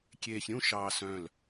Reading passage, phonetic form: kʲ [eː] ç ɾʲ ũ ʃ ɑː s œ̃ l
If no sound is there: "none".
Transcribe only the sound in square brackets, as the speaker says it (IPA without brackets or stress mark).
eː